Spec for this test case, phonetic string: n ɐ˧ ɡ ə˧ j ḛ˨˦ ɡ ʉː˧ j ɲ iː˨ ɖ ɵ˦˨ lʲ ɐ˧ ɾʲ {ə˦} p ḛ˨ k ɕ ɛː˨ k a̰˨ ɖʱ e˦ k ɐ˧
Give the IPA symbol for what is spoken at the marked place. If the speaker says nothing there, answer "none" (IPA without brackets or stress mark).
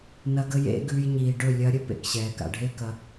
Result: ə˦